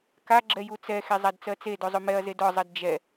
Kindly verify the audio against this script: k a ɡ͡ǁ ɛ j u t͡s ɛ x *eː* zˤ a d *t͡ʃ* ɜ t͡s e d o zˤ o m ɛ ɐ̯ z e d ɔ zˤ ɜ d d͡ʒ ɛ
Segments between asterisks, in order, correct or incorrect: incorrect, incorrect

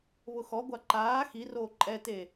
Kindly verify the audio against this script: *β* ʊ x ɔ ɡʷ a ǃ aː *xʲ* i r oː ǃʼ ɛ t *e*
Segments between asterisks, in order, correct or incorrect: correct, incorrect, correct

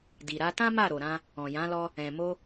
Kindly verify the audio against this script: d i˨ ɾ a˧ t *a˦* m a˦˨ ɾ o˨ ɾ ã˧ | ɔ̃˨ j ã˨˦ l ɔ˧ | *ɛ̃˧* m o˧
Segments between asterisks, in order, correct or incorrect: incorrect, incorrect

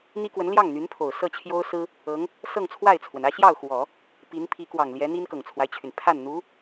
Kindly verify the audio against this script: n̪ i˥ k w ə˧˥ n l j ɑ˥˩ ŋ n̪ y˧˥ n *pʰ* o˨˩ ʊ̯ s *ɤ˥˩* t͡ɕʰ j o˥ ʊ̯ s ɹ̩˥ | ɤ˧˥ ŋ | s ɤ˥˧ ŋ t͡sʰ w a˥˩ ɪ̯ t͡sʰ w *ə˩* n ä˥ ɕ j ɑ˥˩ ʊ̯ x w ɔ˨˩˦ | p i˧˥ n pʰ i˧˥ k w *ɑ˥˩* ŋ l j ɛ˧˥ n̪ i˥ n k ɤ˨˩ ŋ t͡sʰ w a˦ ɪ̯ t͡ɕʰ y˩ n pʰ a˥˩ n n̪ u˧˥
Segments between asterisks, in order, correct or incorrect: correct, correct, correct, incorrect

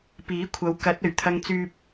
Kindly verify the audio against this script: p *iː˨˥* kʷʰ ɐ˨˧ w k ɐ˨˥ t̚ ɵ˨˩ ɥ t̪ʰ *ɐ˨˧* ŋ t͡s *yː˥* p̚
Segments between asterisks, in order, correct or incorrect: correct, incorrect, correct

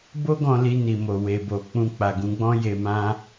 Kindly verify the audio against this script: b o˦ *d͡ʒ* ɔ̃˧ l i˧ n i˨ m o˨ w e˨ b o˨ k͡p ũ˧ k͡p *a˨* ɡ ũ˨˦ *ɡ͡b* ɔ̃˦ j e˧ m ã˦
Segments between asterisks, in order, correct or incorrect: incorrect, correct, correct

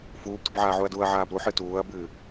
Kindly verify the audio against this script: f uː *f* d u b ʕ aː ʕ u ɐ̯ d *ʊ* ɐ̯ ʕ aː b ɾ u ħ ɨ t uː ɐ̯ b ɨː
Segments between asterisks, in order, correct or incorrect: incorrect, incorrect

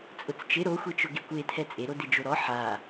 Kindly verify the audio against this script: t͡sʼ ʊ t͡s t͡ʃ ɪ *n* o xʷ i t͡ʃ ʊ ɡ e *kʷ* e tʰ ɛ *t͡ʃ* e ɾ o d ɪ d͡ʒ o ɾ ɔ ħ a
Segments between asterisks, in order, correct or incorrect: incorrect, correct, incorrect

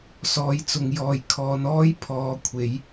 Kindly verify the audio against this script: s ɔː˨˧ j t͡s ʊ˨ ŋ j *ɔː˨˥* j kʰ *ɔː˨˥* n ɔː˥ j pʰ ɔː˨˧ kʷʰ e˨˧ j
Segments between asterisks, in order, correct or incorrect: incorrect, incorrect

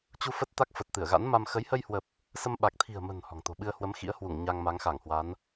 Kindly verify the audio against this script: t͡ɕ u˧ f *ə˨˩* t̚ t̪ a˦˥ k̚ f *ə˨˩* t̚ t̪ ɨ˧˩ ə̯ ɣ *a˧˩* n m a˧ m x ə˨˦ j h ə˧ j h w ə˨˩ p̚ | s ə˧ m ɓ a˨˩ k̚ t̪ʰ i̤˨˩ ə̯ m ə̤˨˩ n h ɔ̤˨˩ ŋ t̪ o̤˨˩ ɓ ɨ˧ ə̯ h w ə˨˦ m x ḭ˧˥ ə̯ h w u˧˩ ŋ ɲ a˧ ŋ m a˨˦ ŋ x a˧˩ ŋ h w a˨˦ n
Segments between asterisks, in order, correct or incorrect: incorrect, correct, incorrect

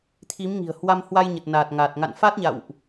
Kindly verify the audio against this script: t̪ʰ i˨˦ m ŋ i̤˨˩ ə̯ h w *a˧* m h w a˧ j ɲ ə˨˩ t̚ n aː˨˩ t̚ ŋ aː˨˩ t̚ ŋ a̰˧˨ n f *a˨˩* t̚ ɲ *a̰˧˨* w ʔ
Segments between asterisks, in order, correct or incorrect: correct, incorrect, correct

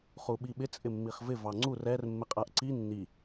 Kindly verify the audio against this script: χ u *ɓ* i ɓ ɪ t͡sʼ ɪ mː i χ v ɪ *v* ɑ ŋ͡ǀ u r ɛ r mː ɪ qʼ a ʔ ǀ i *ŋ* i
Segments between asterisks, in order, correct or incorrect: correct, correct, incorrect

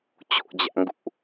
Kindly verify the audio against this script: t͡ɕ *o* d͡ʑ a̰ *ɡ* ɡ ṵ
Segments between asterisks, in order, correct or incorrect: incorrect, incorrect

